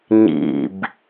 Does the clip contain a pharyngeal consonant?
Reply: no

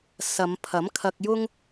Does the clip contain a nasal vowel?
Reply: no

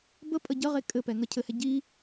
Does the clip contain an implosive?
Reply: no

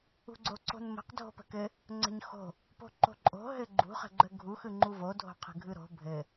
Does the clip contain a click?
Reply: yes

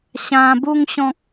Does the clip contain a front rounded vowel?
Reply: no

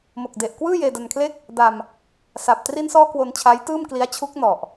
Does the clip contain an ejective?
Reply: no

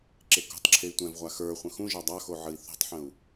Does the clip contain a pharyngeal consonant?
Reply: yes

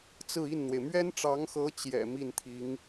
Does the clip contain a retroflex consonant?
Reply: yes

